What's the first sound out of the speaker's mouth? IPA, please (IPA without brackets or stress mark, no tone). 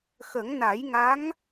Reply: x